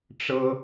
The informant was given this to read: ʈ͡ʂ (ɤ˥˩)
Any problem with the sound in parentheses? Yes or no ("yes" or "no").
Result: yes